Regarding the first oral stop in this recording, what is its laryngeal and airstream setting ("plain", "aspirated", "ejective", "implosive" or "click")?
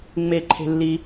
click